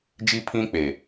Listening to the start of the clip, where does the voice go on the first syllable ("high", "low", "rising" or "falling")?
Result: high